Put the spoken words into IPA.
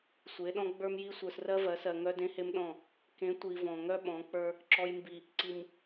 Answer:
sʷ e˨˦ ɗ ɔ̃˦ ɡ͡b ə˞˦ m j i˦ sʷ ə˞˨ s r ɜ˦ v ɜ˨˦ s ɜ˨ ŋ œ˦ d ẽ˦ h e˦ m ɗ ɔ̃˦˨ | k ẽ˨˦ tʷ i˨ v ɔ̃˨ ŋ œ˦ ɓ ɔ̃˨˦ k͡p ə˞˦ | ǁ ɔ˨ j m b i˨ | ǀ i˨ m

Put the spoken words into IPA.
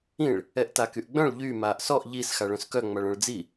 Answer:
ĩ ɭ | ɛ ʔ t a k y ʔ ɡ͡b œ̃ ɭ ʎ y m aː ʔ s ɔ ʔ ʎ i s x a ɭ œ̃ s k œ ŋ͡m a ɭ œ̃ ɭ d͡z i

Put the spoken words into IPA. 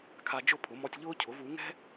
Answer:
kʰ a˧ d͡ʒ ʊ˥˩ pʰ ʊ˩˥ m ɔ˧ tʲ ʎ ʊː˥ cʰ ʊ˩˥ v u˩˥ ŋ ɛ̤˥

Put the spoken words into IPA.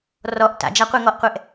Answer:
r ɔ ʔ t a̰ d͡ʒ a qʷ i ŋ ɔ ʔ qʷ ɛ ʔ

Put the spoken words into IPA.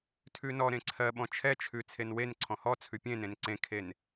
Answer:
tʰ ʉ n ɔ ɾ ẽ ǀʰ ɜ ɓ ɔ̃ t͡ʃʰ ɛ t͡ʃʰ ʉ t͡sʰ e n w e n ǀʰ ɔ̃ h ɔ t͡sʰ ʉ pʲ ẽ n ẽ n ǀ ẽ kʰ e n

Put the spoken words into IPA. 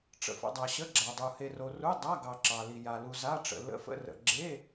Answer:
ʈ͡ʂ ə̰˨ f ə̰˨ dˤ a˨ ɕ ə˧˥˧ ɡ͡ǁ a˨ dˤ u˨ h e˨ r o˨ r u˧˥˧ dˤ a˧˥˧ ɡ ɑ˨ ǁ ɑ˨ l i˨ j a˨ l u˨ z a˧˥˧ ʈ͡ʂ ə̰˨ l ə̰˧˥˧ f ə̰˧˥˧ r ə̰˨ ɡ͡ǁ e˧˥˧

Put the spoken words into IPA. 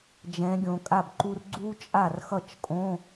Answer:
d͡ʒ ɛ̃˨˦ ɡʲ õ˨ kʼ a˥˩ b ǃ u˥ r ɡ͡ǀ u˥ t͡ʃʼ a˥˩ r x ʌ˥˩ t͡ʃ kʼ õ˧˥˧

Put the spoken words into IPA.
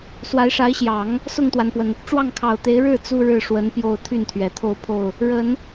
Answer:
s w a˧˥ ɪ̯ ʂ a˧˥ ɪ̯ ɕ j ɑ˨˩˦ ŋ | s ʊ˥˩ ŋ t̪ w a˩ n p w ə˩ n | ʈ͡ʂ w ɑ˥˩ ŋ kʰ ɑ˨˩ ʊ̯ t̪ e˧˥ ɪ̯ ɻ ɻ̩˥˩ t͡s u˥ ɻ ɻ̩˥˩ ʂ w ə˧˥ n p j o˥˧ ʊ̯ t̪ʰ y˥˩ n t̪ʰ ɥ ɛ˨˩ t̪ʰ o˥˧ ʊ̯ pʰ o˥˩ ʊ̯ | ɻ ə˨˩˦ n

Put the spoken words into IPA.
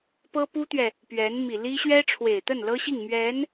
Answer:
p ɤ˥ p u˥ t̪ ɥ ɛ˨ | p ɥ ɛ˧˥ n m i˨˩ l i˥ ɕ ɥ ɛ˥ ʈ͡ʂʰ w e˨˩ ɪ̯ t̪ ə˥˩ n l ɤ˥ ɕ i˥˩ ŋ m ɥ ɛ˧˥ n

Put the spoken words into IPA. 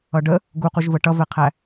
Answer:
ʌ ɖ ə | ɡ u q u ʒ v ə ʈ ʌ v ɛ qʰ æ

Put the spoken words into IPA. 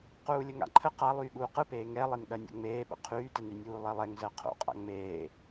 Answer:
q uː lʲ ə ŋ a̰ ǃʰ ə q a lˠ yː ɠ uː q ɯ p eː ŋ ɛ lˠ e n ɠ ɜ nʲ o̰ ŋ͡m eː ɓ ə̰ qʰ yː t ɛ n y nʲ uː lˠ ɛ lˠ ɛ ŋ z ɜ qʰ o̰ qʼ a̰ ŋ͡m eː

